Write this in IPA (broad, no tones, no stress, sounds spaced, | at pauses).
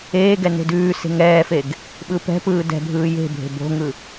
eː ɡ ɛ n e̤ d ʉː s e̤ ŋ ɛː f e ɡ | ɓ ɯ p ɛ̤ p ɯː d ɛ̤ bʱ ɯː j e̤ bʱ e̤ b o̤ ŋ ɯ